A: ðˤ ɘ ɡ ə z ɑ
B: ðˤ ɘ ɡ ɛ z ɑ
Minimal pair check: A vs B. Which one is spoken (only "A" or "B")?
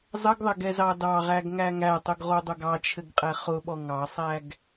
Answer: B